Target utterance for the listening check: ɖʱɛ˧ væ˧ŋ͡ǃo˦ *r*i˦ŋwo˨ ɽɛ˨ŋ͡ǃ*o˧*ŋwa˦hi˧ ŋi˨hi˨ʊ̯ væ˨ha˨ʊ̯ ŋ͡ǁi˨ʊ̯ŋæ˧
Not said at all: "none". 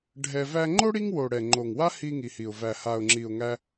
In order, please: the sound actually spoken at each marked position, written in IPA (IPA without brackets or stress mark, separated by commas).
ɽ, o˨